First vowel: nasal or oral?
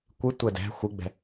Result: oral